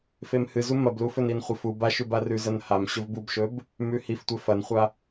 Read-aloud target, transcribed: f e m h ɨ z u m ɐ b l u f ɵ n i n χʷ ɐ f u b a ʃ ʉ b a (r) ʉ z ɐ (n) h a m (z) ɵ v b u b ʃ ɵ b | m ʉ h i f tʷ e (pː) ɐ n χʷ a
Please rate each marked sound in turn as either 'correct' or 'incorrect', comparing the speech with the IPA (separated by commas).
correct, correct, incorrect, incorrect